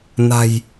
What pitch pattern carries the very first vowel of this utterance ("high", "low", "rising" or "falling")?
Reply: low